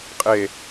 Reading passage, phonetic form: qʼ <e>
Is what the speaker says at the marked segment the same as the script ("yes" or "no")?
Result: yes